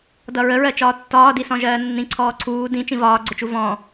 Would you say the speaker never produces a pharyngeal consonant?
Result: yes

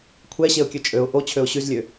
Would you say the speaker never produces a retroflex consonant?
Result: yes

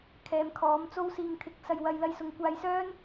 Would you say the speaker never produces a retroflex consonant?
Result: yes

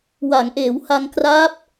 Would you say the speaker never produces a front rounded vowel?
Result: yes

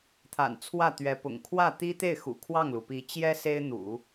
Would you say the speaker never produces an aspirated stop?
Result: no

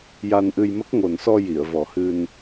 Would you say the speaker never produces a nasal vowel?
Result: yes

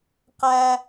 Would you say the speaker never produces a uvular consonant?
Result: no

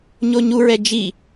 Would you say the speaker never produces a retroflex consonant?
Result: yes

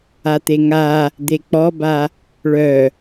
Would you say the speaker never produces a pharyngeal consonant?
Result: yes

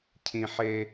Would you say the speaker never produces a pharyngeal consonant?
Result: no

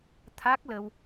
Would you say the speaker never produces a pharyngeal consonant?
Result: yes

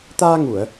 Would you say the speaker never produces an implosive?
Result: yes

